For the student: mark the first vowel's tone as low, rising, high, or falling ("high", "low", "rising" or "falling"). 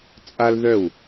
high